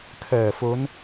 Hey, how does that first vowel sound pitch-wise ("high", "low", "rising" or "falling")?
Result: low